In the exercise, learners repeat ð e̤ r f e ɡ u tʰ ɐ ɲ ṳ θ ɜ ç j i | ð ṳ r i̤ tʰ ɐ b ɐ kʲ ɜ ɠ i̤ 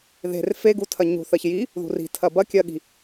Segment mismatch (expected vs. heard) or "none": none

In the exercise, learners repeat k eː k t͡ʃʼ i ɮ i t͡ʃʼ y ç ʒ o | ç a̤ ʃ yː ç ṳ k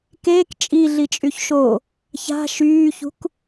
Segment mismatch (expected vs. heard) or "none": ʒ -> ʃ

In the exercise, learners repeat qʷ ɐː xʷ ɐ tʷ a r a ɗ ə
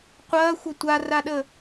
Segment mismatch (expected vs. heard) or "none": none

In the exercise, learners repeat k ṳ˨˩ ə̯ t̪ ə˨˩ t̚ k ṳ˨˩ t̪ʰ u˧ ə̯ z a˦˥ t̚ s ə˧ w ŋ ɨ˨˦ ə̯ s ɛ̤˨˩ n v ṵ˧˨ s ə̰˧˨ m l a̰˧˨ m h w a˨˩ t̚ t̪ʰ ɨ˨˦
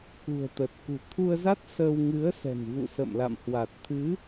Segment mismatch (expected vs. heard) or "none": none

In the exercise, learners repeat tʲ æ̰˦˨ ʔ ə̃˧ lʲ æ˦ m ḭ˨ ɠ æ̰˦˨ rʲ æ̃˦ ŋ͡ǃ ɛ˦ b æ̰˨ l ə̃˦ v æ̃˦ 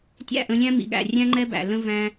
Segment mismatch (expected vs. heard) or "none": æ˦ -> æ̃˦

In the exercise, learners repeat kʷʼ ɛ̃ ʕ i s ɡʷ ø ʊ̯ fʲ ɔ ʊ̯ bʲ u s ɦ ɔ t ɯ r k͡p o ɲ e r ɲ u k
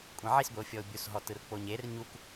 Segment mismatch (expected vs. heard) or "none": ø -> e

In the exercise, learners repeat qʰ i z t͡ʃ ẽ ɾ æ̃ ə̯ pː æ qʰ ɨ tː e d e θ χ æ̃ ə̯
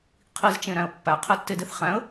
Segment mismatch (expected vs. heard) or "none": ɨ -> e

